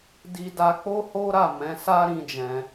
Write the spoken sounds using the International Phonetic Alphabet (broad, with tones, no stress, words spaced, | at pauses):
di˦da˦ k͡po˦ho˦ɾa˦˨ mɛ̃˨˦ sa˦ ɾĩ˦d͡ʒɛ̃˧